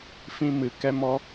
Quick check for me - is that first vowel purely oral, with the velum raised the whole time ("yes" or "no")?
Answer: no